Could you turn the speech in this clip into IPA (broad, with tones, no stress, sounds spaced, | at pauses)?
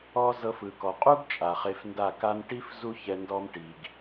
ɔ˦ z ɤ˧ f ɯ˨ k ɔ˨ qʼ u˦ ɡ t͡ʃʼ a˨ χ e˧ f n d a˦˨ k a˧ n ʈ i˦ f z u˦ ç ɛ˧ n d ɔ˧ m ʈ i˨ ɡ